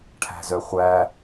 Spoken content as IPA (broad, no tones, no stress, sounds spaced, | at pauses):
ʈʰ æ̤ z œ χʷ æ